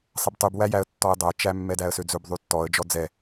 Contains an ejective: no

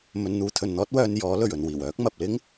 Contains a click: no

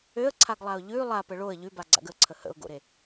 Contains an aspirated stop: yes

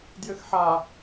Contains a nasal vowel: no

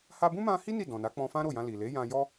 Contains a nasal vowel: yes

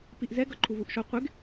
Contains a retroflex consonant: no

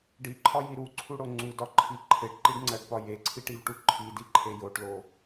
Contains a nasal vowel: no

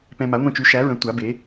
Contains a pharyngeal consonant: no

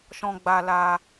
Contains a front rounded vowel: no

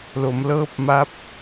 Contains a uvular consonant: no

